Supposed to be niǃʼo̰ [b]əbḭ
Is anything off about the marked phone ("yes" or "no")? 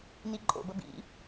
no